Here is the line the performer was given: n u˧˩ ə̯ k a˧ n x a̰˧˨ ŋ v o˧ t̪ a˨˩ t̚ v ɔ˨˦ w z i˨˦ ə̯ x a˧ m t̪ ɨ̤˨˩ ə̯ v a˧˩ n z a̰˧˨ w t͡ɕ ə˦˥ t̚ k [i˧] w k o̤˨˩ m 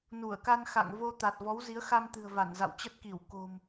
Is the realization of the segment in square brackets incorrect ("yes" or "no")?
yes